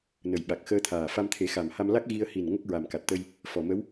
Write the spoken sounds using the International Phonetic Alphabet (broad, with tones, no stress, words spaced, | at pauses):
nə˨˩jɓa˨˩k̚ xəː˧t̪ʰaː˨˩ fa˧mt̪ʰe˨˩˦xa˨˩mha˧m la˦˥k̚ ɣi˧ə̯ hi˨˩n ŋə˦˥k̚ɹa˨˩mka˨˩t̚t̪ə˧j | fɔ˨˩mə˧˥w